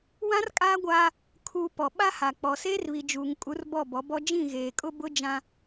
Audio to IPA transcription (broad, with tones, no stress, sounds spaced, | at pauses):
w ã˦ r kʼ aː˦ ɡʷ aː˦ | kʰ uː˨ p ɔ˨ ɓ a˦ h a˨ k͡p ɔ˨ s eː˦ r β i˨ d͡ʒ uː˨ ŋ kʼ u˨˦ r b ɔ˦˨ b ɔ˨˦ b ɔ˦ d͡ʒ ĩ˦˨ ɣ eː˨ kʼ ʊ˦ b ʊ˦ d͡ʒ ã˦